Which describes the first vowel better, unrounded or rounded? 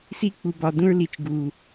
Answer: unrounded